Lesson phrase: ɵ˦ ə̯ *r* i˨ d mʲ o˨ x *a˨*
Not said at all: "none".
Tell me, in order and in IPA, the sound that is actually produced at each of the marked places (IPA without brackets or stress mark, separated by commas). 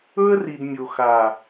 r, a˨